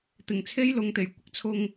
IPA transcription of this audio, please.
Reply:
t̪ ɪ˨˩ ŋ t͡sʰ e˥ j l ʊ˨ ŋ t̪ e˨˩ j kʷ ɪ˧ k̚ t͡sʰ ʊ˧ ŋ

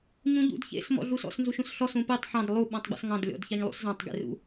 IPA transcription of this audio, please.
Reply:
ɲ ũ ʎ ṵ d ç ḛ s m ɔ̰ ɮ u s ɔ̰ s n z u ʃ ũ s ɬ ɔ s ũ p e tˤ ħ ɑ̃ d lˠ u ɓ ɔ̃ tˤ ɡ͡b ɔ̰ s ŋ ɑ̃ d lʲ ɔ̰ d ç ɑ ɲ lˠ ṵ s z ɑ̃ tˤ ɡ ḛ r ṵ

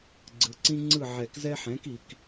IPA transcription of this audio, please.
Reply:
ɡ͡ǀ ɯ˨ ǀ ĩ˦ ŋ͡ǀ ɯ˦˨ ʕ ɛ˨˩˦ k z ɛ˦ ħ ɛ̃˩˥ k i˨ k

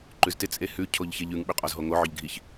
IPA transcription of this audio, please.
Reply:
ǃ ʉ z t ɪ t͡sʼ e h ʉ cʰ o ʎ ç e ʎ ʉ ŋ ɓ ʏ qʼ ɔ z ɦ o ŋ o ʕ ʏ ʎ ɡʱ i ç

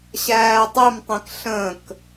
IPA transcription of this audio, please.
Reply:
ɕ æː tˤ i m tˤ ĩ k ɬ ə̃ k

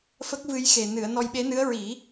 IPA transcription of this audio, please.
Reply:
f ə˦˥ k̚ v ɨ˧ j x e˨˩ n ɨ˨˩˨ ə̯ n ɔ˧ j ɓ e˧˥ n ɨ˧˥ ə̯ ɹ i˨˩˦

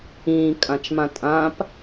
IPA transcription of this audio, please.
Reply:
ĩː kʼ ã t͡ʃ m ã tʼ ã p

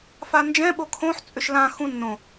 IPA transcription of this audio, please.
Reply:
f a n d͡ʒ ɛ̃ ɓ o kʰ õ ħ t͡sʼ ʏ ʃ l ã x ũ nː õ

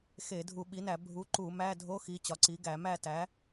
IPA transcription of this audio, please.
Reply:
x e˧˩˧ dʱ u˧˩˧ ɓ i˩˥ n æ˧˩˧ bʱ u˩˥ ǃ u˧˩˧ m æ˧˥˧ dʱ o˧˥˧ x i˩˥ t͡ɕ ɒ˩˥ ǀ i˩˥ ɡ æ˧˩˧ m æ˥˨ t æ˩˥

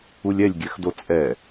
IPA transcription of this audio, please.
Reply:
u lʲ ɛ lʲ ɡʲ ɛ x d o t͡sʼ ɛ

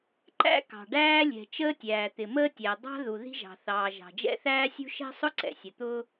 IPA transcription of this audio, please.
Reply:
ǃ æ̰˥ k ɑ̤˩ ɖ æː˥ lʲ ɛ̤˩ t͡ʃ əː˥ tʲ æː˩ t̪ ɪ˩ m əː˥ tʲ æ˩ dˤ ɑ̤˥ ð u˩ ð i̤˥ ʒ ɑ̤˩ θ ɑː˩ ʒ ɑ̤˩ d͡ʒ ɛ̰˥ θ æː˥ sʲ ṳ˥ ʃ ɛ̤˥ sˤ ʊ˥ ǀ ɛ̰˩ sʲ ə˩ t̪ ʊː˥

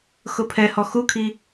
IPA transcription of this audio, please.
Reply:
x ʊ pʰ ɛ h ɔ x u kʰ i

